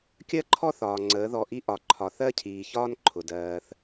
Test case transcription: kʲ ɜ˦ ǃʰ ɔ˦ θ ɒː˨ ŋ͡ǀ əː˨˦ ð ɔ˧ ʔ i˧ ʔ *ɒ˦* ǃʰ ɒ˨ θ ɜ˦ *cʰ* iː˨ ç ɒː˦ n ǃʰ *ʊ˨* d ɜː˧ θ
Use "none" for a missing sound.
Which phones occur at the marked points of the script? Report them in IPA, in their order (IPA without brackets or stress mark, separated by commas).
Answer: ɒ˨, cʰ, ʊ˨